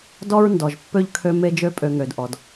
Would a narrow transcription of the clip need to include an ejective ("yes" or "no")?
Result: yes